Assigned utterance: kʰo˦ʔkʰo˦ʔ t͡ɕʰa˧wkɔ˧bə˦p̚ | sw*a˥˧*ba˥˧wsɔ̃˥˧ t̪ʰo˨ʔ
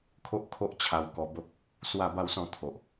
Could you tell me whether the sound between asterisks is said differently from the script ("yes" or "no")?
no